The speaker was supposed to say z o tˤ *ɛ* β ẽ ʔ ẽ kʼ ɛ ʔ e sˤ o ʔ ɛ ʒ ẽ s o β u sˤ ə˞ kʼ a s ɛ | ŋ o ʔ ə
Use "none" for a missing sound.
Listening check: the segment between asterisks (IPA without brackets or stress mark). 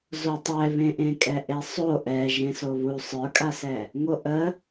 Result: ɛ